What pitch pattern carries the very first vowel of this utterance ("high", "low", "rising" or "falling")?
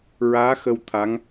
rising